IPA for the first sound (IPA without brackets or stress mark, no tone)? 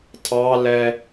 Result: tʰ